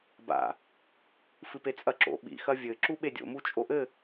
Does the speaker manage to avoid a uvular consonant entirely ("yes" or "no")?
yes